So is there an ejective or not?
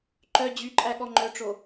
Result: yes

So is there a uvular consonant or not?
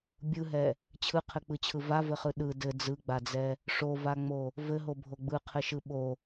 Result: yes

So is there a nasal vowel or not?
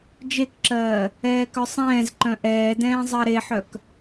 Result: yes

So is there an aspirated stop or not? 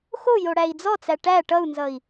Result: no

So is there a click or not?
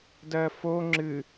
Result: yes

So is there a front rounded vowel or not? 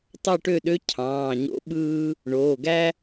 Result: yes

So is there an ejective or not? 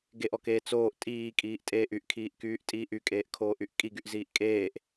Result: yes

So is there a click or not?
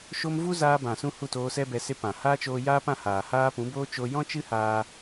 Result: no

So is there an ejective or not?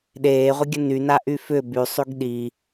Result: no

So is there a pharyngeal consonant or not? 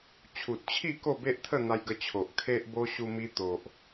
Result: no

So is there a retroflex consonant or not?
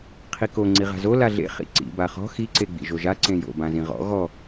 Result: no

